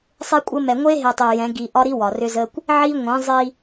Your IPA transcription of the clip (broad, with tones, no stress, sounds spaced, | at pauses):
sˤ e˦ kʷʼ ə˦ m ɛ˨ ŋʷ e˦ ɦ e˨ tˤ e˨ j ɛ̃˨˦ ɡ i˨ ʔ ɒ˦ ɾ i˦ w ɒ˨ r ʏ˦ z ə˦ kʷ | ʕ i˦ ŋʷ ĩ˨˦ zˤ i˦